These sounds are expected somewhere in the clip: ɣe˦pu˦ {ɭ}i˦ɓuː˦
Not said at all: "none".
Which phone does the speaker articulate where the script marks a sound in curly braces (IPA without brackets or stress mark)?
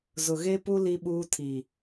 l